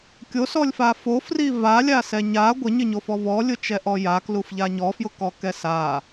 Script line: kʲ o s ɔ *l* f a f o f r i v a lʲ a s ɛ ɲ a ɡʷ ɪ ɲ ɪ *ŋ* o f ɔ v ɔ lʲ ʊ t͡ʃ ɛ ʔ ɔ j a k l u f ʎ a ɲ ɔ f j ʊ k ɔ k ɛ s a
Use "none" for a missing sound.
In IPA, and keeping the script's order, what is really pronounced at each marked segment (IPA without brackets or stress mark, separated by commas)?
lʲ, ɲ